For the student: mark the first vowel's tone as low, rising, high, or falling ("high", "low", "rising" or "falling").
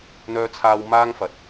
high